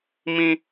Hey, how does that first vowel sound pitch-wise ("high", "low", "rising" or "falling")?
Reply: high